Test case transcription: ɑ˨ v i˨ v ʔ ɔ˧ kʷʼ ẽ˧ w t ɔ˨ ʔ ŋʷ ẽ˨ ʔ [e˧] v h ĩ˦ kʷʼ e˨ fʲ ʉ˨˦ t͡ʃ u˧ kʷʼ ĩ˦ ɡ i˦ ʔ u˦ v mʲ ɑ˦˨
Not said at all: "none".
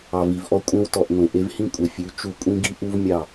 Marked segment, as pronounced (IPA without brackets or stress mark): e˧